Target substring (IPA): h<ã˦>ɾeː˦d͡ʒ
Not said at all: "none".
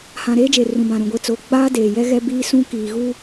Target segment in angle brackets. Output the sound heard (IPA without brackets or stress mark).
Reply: ã˨